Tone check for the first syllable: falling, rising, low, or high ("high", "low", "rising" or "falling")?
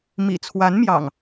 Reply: low